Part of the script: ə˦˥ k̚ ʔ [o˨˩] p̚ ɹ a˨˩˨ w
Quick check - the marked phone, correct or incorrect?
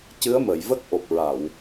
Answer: correct